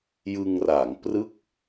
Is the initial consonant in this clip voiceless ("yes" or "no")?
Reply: no